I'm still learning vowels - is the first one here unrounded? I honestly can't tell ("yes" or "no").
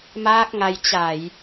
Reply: yes